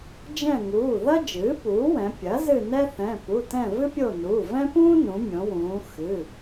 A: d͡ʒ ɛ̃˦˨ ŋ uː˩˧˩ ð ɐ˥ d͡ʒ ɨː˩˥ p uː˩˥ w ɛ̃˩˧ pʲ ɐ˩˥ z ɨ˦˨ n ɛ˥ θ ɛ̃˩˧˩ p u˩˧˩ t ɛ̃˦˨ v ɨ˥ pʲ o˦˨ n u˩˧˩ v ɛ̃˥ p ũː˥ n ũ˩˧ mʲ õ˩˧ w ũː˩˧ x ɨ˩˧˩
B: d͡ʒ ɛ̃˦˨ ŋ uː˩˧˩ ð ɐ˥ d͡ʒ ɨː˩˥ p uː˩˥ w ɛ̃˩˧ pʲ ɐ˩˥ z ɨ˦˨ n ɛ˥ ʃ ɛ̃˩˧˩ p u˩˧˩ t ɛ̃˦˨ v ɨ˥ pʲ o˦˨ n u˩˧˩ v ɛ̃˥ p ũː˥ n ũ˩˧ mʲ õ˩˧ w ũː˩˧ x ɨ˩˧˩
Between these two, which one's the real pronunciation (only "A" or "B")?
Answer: A